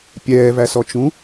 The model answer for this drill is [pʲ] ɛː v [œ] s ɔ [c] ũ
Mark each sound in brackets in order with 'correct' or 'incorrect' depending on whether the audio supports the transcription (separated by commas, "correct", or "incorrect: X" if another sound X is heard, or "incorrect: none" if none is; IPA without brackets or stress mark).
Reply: correct, incorrect: æ, incorrect: t͡ʃ